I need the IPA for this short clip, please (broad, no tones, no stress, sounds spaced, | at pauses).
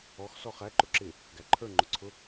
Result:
ɔ x s ɔ χ æ ǃ ʊ ǁ ɪ | ɡ æ ǃʰ ə˞ ŋ͡ǃ ʊ ǀʰ ʊ